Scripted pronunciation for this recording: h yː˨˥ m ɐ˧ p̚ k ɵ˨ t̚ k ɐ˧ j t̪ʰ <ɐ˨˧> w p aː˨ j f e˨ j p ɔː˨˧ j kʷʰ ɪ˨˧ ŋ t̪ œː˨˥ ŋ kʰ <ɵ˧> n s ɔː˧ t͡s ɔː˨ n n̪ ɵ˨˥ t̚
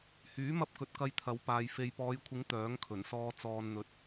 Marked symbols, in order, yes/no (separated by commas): yes, no